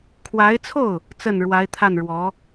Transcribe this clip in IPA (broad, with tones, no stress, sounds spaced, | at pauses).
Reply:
kʰ w a˧˥ ɪ̯ t͡sʰ o˥˩ ʊ̯ | t͡s ə˥˩ n ɻ w a˧˥ ɪ̯ t̪ʰ a˥˩ n ɻ w ɔ˧˥